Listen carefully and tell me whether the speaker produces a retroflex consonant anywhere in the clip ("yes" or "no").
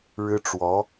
yes